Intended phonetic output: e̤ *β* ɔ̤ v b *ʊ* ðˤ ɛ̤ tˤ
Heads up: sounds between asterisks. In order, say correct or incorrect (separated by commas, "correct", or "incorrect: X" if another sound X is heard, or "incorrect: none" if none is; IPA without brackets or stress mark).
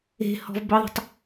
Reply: incorrect: h, correct